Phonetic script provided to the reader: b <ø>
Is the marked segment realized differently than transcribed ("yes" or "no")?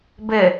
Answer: yes